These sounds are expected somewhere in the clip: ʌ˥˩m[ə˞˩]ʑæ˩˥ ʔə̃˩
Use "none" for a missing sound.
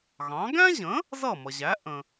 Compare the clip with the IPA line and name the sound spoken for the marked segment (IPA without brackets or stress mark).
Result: ʌ˩